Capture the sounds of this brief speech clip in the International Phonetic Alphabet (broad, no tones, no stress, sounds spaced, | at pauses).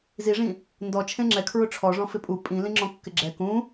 z i ʐ ĩ | n d ɔ t͡ʃʰ ẽ ŋ͡ǁ ɛ kʰ ɹ ʊ ʈ͡ʂʰ ɔ ʐ ɔ̃ f ɪ pʼ u pʼ ĩ l ĩ ŋ͡ǁ ɔ̃ kː ɪ ɡ͡ǁ ɛ k ũ